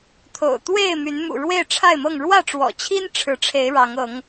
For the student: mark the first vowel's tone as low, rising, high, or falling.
low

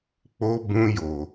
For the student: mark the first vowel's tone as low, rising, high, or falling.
high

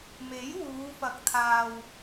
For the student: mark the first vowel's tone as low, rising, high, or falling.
rising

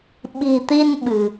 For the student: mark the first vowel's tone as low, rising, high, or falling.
low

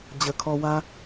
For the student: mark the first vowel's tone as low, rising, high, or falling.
low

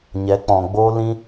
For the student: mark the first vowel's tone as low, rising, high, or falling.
rising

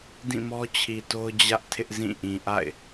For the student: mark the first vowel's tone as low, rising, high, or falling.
falling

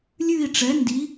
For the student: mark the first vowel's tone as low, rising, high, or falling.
falling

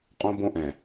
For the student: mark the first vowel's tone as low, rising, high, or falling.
high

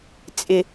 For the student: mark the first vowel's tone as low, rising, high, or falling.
low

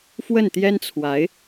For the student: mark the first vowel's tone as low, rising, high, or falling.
falling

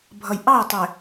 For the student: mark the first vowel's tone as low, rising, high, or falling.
low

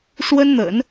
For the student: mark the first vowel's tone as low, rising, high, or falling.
high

